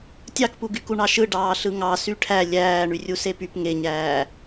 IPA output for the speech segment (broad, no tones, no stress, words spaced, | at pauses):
tʲɑkpuɡy kuɳɑʃɯ ɖɑːɬɯŋɑ syʈʰæ lʲæː ɳyrʲusepyp ŋeɲæː